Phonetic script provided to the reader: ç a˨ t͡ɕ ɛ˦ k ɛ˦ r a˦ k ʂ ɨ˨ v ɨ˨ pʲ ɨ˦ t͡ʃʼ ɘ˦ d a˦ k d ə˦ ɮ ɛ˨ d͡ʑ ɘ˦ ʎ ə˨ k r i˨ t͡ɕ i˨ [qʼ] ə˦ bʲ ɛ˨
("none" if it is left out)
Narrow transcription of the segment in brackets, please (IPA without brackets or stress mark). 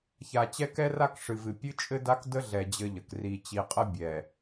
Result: qʼ